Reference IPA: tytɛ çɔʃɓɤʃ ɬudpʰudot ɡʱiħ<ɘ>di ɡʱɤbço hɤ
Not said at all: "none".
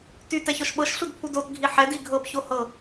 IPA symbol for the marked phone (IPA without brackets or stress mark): ɛ